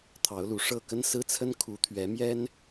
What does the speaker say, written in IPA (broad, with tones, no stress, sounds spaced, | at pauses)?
t̪ʰ ɑ˨˦ ʊ̯ l u˨˩ ʂ ɤ˥˨ k ə˦ n s ɹ̩˦ t͡sʰ ə˦ n kʰ u˨˦ t̪ʰ ɥ ɛ˨˦ m j ɛ˦ n